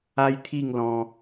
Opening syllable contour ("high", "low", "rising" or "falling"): high